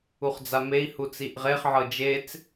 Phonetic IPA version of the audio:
u χ d͡z a m e i̯ h u t͡s i ʔ ʁ e χ ʕ ɤ d͡ʒ e t͡s

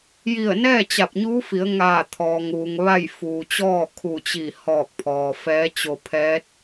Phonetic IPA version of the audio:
j i˧˩ ə̯ n ɛː˥˨ t͡ɕ a˧˩ p̚ ɲ uː˧˥ f i˩˧ ə̯ ŋ aː˧˩ t̪ʰ ɔː˩ ŋ ʋ u˩ ŋ ʋ a˥˨ j f uː˩ t͡ɕ ɔː˥˨ kʰ u˧˩ t͡ɕ i˧˩ h ɔː˧˩ k̚ pʰ ɔː˩ f ɛː˧˥ t͡ɕ o˧ pʰ ɛː˧˥ t̚

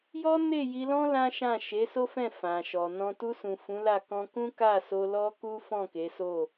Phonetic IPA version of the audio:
j ɔ˦ n e˦˨ j i˧ l ɔ̃˦ l ã˦ ʃ ã˦˨ ʃ e˨˦ s o˦ f ɛ̃˦˨ f ã˨ ʃ ɔ˨ n ɔ̃˧ t u˧ s ũ˨ f ũ˨˦ l a˦˨ k ɔ̃˧ k ũ˦ k a˦˨ s o˧ l ɔ˦ k u˦ f ɔ̃˦˨ k e˨˦ s o˦˨

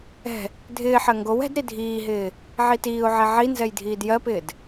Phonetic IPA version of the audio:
ɛ̤ | dʱ ɪː ħ ɜ ŋ ɡ o w ɛ̤ d ɾ i dʱ iː ɦ ɪː | ʕ i t iː ʊ̯ ʕ e ʕ i n z ɛ j dʱ iː d j ɜ p ɪː d

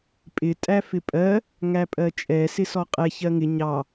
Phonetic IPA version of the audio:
pʼ ɪ tʼ æ f ɪ pʼ ɜ | ŋ æ pʼ ɜ t͡ʃʼ ɛ s ɪ s ɔ qʼ ɛ ç ɜ ŋ ɪ ɲ ɑ

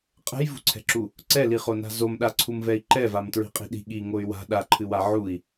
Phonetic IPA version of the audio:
qʼ ɛ̤ j v ṳ ǀʰ ɛ̤ ǁ u | ǀ ɛ l i χ o n a̤ z o m ɗ a ǀʰ u m v ɛ i̯ ǃ ɛ v a m t ɹ i̤ qʼ i̤ ɗ i̤ ɠ i ŋ o y̯ w a̤ ɗ a ǃʰ ɨ w a ʕ u i̯

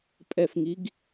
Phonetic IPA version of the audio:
pʼ ɛ f ŋ i ɡ

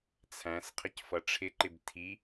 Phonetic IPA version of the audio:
t͡sʰ æ̃ s qʰ ə c f ʌ ʈ͡ʂʰ ɪ ǃ ɪ b tʰ i

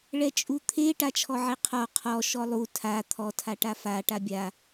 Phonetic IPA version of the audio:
ɭ ɛ t͡ʃʼ u t̪ʰ e ʈ a t͡ʃʰ ɔ ʕ e qʰ ɔ qʰ ɔ ʃ ɔ lˠ u tʰ a t̪ʰ ɔ tʰ a ʈ a f a ʈ a bʲ a

